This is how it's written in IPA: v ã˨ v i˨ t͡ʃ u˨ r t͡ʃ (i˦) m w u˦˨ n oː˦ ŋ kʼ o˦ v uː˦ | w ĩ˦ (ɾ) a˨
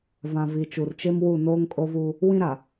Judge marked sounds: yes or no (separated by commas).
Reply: no, yes